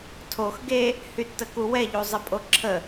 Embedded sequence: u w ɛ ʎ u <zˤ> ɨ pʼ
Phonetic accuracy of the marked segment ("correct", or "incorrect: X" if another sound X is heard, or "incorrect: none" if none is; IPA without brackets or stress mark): correct